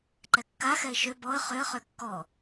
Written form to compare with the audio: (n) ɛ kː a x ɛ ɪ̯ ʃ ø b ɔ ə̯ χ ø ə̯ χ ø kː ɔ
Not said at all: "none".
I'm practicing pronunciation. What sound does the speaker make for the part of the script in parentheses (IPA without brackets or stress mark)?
ǃ